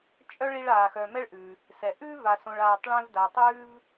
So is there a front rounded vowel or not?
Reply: yes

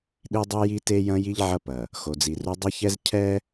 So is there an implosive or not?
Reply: yes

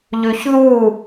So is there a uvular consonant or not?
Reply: no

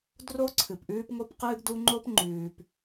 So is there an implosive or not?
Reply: no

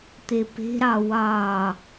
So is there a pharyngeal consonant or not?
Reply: no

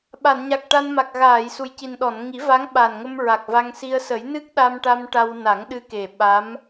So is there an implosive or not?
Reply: yes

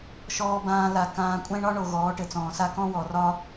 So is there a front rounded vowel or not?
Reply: no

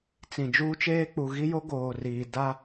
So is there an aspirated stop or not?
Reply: no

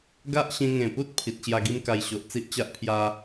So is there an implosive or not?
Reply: no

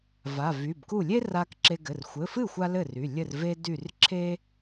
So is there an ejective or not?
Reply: no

